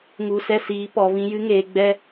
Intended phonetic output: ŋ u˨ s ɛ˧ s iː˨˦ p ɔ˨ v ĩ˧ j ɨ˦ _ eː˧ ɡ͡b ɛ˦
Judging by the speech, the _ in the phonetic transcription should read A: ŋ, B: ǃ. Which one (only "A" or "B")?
A